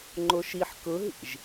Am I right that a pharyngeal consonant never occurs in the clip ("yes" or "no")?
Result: no